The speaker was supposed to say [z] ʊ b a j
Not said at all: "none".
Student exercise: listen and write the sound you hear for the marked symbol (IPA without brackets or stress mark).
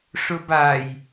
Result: ʂ